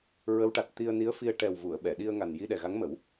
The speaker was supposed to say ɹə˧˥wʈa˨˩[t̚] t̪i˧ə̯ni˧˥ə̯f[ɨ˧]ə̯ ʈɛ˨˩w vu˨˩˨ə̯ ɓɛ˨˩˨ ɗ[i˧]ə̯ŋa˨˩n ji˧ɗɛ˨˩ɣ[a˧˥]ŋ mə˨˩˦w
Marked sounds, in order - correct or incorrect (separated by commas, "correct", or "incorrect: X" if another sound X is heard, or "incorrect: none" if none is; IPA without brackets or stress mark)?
correct, incorrect: i˧, correct, correct